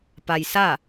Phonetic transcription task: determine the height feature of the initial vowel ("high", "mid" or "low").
low